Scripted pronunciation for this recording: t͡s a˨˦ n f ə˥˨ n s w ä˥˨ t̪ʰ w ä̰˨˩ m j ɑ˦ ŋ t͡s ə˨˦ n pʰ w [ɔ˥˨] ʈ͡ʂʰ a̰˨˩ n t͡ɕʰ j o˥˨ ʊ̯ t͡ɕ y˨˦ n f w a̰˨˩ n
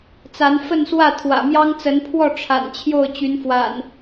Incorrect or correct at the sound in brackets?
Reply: correct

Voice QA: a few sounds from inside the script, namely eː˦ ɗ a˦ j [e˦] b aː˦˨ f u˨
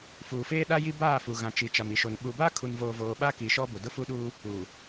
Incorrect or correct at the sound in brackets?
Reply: incorrect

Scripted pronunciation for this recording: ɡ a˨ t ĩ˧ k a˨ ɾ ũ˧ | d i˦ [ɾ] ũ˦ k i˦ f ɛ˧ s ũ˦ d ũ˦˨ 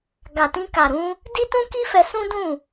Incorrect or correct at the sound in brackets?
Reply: incorrect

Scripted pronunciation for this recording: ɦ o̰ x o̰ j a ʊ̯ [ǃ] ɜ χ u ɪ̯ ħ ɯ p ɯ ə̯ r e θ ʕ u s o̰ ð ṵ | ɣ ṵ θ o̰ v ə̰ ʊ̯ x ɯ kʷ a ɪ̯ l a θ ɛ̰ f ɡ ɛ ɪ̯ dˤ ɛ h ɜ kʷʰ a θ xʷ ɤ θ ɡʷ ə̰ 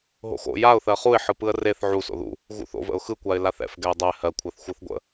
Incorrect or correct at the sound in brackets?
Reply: incorrect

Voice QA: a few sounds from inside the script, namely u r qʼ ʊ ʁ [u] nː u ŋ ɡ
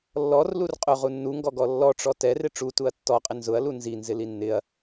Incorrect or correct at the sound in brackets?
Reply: correct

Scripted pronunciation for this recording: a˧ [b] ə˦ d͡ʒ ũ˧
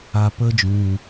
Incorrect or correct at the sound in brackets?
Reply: incorrect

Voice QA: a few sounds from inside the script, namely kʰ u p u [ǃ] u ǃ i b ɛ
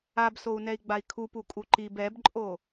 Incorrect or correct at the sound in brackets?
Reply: incorrect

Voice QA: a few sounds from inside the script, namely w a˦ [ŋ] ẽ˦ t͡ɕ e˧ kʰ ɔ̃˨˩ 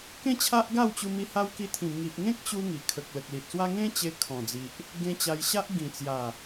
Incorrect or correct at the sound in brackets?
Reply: correct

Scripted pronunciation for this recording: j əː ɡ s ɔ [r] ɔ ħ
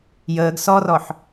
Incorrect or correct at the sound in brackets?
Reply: correct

